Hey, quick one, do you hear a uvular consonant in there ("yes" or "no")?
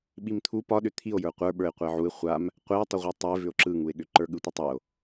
yes